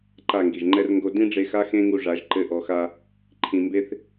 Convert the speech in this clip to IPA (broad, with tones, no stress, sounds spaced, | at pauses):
ǃ a˦˨ ŋ ɡ i˨ ʒ ŋ͡ǃ ɛ˦ r ŋ ɡ o˧ d ĩ˦ ɖ͡ʐ e˧ x a˦ x ẽ˦ ŋ u˧ ʐ a˨˦ ʒ ǃ ɘ˧ ʔ ɔ˨ x a˧ | ǃʰ ĩ˧ m b e˦ θ